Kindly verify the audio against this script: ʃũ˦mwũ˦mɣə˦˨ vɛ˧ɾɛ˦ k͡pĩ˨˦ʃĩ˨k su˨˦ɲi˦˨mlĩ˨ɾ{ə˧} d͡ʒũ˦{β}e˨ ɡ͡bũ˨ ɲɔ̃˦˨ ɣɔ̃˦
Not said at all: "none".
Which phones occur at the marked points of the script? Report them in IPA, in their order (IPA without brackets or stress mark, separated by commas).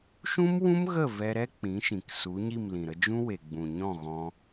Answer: ə˧, w